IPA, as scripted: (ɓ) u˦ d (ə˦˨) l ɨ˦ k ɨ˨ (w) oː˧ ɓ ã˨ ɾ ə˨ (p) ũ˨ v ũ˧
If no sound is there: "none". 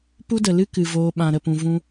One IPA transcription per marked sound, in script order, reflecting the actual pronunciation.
p, ə˨, v, p

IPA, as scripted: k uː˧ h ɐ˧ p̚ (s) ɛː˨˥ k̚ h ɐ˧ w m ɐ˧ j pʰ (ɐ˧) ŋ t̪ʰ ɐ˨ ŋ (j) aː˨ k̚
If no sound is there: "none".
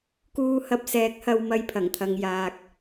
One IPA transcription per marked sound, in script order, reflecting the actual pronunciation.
s, ɐ˨˩, j

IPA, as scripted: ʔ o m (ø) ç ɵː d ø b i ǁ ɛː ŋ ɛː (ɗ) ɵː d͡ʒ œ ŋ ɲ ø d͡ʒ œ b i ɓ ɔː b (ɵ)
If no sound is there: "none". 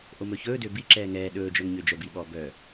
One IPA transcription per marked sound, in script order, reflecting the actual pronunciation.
ɵ, ɗ, œ

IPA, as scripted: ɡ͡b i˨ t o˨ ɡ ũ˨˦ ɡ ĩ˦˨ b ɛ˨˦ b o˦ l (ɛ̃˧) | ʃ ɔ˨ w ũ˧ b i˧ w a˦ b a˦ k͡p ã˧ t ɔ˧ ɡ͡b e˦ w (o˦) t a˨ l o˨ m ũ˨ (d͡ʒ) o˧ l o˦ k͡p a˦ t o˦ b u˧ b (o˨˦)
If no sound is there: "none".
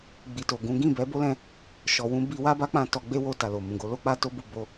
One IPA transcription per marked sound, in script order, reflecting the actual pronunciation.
ɛ̃˧, o˧, ɡ, o˧

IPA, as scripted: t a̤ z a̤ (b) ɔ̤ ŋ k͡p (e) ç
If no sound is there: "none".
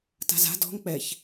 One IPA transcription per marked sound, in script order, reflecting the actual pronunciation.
d, ɛ

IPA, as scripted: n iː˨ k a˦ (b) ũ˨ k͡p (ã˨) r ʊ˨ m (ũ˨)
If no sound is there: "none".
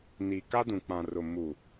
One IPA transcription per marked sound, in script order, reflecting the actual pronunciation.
d, ã˨, u˨

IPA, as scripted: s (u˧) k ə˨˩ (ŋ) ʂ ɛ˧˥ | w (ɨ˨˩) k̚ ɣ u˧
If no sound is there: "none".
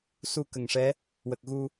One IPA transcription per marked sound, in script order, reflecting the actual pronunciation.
u˧, ŋ, ə˨˩

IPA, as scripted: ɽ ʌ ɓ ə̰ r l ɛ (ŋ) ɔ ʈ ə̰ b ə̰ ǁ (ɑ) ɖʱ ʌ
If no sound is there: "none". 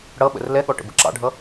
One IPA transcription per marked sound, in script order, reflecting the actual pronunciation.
ɠ, ɑ̰

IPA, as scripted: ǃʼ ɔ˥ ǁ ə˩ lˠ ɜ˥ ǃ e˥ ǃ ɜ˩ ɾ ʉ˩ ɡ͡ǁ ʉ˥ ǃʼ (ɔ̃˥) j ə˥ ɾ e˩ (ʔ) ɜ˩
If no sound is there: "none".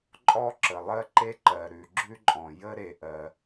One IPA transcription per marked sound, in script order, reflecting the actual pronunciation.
ɔ̃˩, ʔ

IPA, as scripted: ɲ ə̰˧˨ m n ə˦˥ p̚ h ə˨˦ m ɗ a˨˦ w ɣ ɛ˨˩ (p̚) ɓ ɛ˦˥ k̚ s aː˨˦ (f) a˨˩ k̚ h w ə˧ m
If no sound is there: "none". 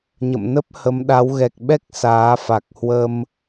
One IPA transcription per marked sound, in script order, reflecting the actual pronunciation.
k̚, f

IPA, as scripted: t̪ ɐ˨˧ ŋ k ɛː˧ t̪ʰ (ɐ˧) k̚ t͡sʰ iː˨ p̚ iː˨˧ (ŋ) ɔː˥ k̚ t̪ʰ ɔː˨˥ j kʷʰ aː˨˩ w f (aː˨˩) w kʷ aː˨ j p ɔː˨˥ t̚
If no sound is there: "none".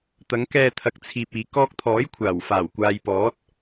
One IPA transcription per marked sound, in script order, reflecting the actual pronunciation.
ɐ˨, k, aː˨˩

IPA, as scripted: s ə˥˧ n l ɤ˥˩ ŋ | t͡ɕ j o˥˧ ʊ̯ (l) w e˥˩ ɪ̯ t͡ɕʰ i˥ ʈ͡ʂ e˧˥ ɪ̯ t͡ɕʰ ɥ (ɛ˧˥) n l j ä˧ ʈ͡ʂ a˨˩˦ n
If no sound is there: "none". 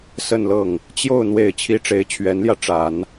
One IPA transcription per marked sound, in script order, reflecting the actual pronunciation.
n̪, ɛ˧˥

